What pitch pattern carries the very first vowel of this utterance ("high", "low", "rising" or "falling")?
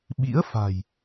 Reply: rising